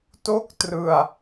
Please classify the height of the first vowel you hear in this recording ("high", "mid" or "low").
mid